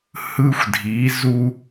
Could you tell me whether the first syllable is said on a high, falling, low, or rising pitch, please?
high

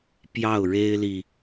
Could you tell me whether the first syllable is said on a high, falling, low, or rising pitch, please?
falling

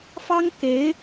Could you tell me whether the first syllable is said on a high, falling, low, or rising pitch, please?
high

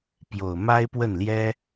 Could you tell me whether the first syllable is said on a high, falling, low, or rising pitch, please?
low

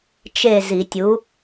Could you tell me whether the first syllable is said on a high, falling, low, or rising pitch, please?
falling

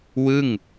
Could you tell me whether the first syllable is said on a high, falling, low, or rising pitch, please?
falling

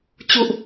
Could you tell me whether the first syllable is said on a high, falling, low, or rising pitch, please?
falling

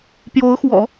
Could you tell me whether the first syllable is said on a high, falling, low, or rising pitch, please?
rising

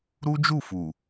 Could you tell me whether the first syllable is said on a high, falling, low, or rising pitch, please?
high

